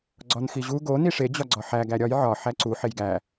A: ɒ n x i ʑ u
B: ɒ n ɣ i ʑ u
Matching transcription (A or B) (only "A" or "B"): A